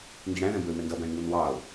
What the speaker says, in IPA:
ndiɽæ̃ðɛ̃bə˞ɪ̯ mɛndʌbæ̃ɪ̯ ŋunwɑʊ̯

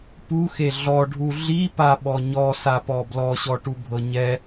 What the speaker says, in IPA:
puxe ɮɔɖʱu ɮipaɓɔ ɲɔsapɔ blɔɕɔʈubʱɤ ɲɛ

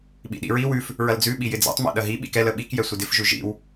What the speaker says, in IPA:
ɓḭɗḭɹi wʉf | ɹɐld͡zʉ ɓijɪd͡zɛ̰tˤ mḭɗɐɦi ɓḭkɛl əɓik jɛsʷɪdɪf ʒʉʒḭw

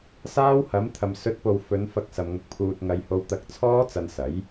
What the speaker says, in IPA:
saː˥whɐ˨˥m t̪ʰɐ˨msɵ˨˥t̚po˨w fɵ˨˧n fɐ˧k̚ sɐ˧mŋʊ˧k̚pʰuː˧t̚ ŋɐ˧jho˧w t̪ɐ˧k̚t͡sʰɔː˥t͡sɐ˧n sɐ˨˥j

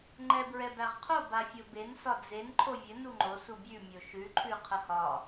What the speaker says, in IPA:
ŋ͡ǃɛbɹɛbæʁqʰo bafʲoben sɒd͡zen ǃʰovʲɘ nuŋ͡ǃo subʲʉ mʲoʃʉ ǃʰʉqʰəhɒ

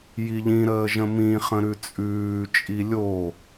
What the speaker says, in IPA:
jiʎĩɾəːʒə̃ mĩ χə̃ɾʉt͡sʼʉː t͡ʃʼilʲo

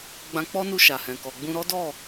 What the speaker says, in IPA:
ɡ͡bã˧k͡pɔ˦nu˧ ʃa˨hɛ̃˨kɔ˨ɡ͡bũ˧ ɾɔ˦dɔ˦˨

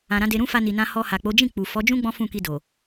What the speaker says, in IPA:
ã˨ɾã˨˦de˧ ɾũ˦fa˧ni˨nã˧ hɔ˧ha˨k͡po˨˦ d͡ʒĩ˦˨ k͡pu˨fɔ˨˦d͡ʒũ˦ ɡ͡bɔ̃˦fũ˦˨ki˧do˨

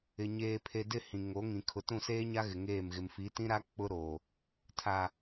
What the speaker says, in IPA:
ɪ˨ ɲeː˨pʰe˨ dɪ˦˨ hĩ˨ŋo˨˦ŋĩ˨ kʰʊ˨tũ˦˨seː˦ɲa˦ ɣɪ˨ŋeː˦˨mɣɪ˨m fi˨˦tĩ˦ɾa˦ k͡pʊ˦ɾoː˨ | tʰa˨

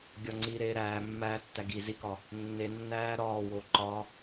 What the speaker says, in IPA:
ɡʲɒŋ͡ǀiːɾeːɾæː mːæ tːæɡi zikɒ | nːenːæː ɾɒːwo ǃɒ

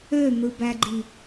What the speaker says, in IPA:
øn̪ɯbæɡ͡ǃi

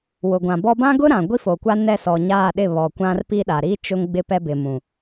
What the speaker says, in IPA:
wʊ˨ɡʷã˨bɔ˦ bã˦ɡʊ˦ ɾã˨ ɡʷi˦fo˨kʷa˦ nɛ˦˨sɔ˨ɲaː˦˨ɗɪ˦˨ βɔ˨kʷã˦rpi˦ɗa˨ ɾi˦ t͡ʃʊ˦ŋɡ͡bɪ˦pɛ˦ bɪ˨mũ˨

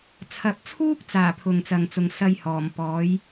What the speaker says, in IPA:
t͡sʰɐ˨p̚t͡sʰuː˥k̚t͡saː˨˩ pʰʊ˨ŋt͡sɐ˨ŋt͡sʊ˨ŋ sɐ˧j hɔː˨˩mpɔː˨˥j

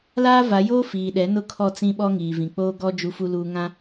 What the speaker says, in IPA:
laː˦va˨˦joː˦ fiː˨ɗɛ˨˦ nʊ˦kʰɔ˦˨t͡sĩ˦ɓɔ˦ ŋiː˨vĩ˨k͡poː˦ ɡɔ˦ d͡ʒu˦fu˦luː˦ ŋã˦

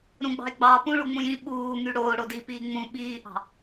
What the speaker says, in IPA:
ɾũɡ͡bɑ̤e̯ ɡ͡bɑ pũɭu ŋ͡mũjĩ ɓuː ŋyɽoː ɽodi piːŋ͡mũ ɓiːʔɑ̤

